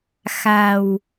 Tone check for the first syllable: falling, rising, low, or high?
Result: low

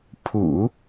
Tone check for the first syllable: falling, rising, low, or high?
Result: low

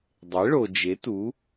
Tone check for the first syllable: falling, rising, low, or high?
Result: rising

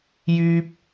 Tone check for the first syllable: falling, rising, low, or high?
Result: high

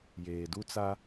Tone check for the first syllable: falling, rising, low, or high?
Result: low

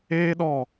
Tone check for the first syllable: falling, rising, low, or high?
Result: high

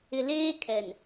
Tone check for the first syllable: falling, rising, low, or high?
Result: low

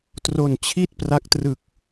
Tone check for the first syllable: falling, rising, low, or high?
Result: low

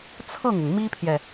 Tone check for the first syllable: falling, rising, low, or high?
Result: falling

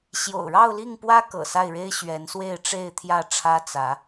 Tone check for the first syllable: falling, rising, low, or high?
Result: low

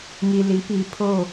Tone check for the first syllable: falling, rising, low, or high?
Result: low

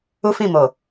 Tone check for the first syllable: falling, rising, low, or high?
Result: high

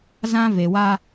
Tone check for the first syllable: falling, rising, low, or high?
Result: high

